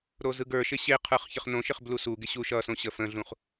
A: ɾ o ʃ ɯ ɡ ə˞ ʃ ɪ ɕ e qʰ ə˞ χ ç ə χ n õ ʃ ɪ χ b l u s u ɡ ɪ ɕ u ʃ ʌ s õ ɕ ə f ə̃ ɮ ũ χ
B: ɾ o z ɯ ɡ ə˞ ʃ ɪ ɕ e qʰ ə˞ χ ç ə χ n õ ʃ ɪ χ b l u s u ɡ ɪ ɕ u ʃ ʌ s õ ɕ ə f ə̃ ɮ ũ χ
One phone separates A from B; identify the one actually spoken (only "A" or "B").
B